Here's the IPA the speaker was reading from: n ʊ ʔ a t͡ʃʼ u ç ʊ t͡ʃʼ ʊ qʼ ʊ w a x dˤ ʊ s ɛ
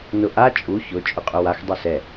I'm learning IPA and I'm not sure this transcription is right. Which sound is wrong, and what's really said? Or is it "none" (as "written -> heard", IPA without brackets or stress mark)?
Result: none